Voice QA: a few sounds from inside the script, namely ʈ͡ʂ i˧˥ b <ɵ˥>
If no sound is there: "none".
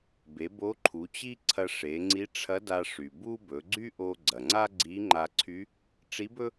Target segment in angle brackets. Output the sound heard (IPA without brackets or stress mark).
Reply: ɵ˥